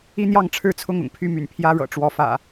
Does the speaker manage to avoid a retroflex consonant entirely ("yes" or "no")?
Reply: no